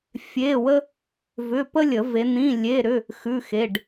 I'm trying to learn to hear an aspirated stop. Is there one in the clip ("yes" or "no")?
no